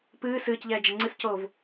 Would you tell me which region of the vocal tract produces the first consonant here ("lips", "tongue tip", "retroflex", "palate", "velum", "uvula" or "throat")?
lips